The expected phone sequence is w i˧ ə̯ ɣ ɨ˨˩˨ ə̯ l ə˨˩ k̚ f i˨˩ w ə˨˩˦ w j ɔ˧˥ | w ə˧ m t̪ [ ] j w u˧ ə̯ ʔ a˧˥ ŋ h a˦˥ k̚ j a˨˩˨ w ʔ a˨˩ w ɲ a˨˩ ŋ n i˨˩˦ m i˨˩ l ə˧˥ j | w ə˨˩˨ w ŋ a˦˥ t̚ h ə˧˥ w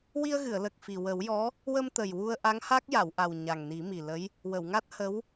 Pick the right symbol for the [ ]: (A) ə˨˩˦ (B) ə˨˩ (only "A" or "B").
B